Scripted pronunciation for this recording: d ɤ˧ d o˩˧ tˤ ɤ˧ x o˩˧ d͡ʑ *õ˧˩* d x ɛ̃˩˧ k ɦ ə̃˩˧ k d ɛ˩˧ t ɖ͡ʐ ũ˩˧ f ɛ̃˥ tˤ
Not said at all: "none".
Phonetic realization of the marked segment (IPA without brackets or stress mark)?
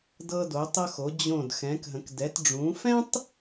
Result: õ˧˩